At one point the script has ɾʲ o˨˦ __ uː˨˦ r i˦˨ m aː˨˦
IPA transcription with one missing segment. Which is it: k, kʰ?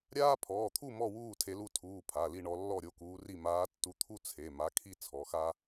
k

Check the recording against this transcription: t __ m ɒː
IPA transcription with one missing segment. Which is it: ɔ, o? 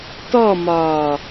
ɔ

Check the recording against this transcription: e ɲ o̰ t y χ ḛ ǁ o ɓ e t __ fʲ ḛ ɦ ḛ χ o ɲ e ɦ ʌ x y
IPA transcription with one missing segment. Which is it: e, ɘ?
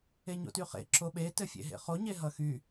ɘ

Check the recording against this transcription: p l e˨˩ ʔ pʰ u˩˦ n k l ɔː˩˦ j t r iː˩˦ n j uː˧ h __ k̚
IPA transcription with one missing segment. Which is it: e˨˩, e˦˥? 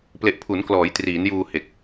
e˨˩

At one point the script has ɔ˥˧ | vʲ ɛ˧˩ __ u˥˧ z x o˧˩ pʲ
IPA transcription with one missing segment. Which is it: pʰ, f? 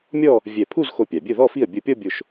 pʰ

